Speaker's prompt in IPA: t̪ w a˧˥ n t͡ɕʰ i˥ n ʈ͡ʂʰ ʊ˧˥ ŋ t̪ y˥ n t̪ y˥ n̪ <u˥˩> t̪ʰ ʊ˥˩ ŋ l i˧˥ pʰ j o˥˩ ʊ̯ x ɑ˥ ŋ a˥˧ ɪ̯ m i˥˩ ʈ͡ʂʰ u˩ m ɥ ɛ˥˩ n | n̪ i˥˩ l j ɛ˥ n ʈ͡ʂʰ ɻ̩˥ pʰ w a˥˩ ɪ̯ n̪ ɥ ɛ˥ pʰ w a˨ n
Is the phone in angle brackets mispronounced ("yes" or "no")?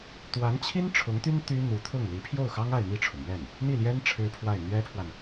yes